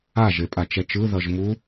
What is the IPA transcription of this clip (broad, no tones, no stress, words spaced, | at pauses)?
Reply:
aʒepʼa t͡ʃɛt͡ʃɯ ðʌʒmu